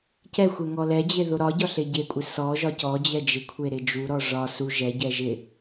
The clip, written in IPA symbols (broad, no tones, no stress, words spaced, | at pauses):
cɛxʷɛ ŋɔlɛd͡ʑe ðoɾɒɟɒ ɬeɟekʷʼɪ sɔ ʒɒcɔd͡ʑɛ d͡ʒɪkʷʰe ɾɪd͡ʒuɾɔ ʐɒ su ʒɛɟɛ ʒɪ